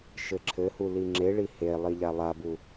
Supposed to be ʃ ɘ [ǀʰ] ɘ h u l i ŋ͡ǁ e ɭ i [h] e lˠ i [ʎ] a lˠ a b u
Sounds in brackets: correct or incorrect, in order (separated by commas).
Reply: incorrect, correct, correct